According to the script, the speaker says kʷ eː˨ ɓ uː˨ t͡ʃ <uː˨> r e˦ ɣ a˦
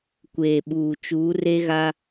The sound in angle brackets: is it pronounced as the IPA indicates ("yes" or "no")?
no